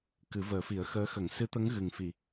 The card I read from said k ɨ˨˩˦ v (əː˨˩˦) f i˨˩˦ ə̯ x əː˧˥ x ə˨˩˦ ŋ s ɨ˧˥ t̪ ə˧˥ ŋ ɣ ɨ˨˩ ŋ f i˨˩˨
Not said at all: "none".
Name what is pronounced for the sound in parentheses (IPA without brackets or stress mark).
əː˨˩˦